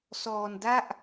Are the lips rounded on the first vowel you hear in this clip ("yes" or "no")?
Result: yes